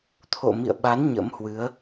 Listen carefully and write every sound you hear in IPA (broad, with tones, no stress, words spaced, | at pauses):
t̪ʰo̰˧˨ mḭ˧˨ə̯ɓa˨˦n ɲə̰˧˥mhwɨ˨˦ə̯